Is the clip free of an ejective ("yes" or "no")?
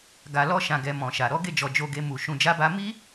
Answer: yes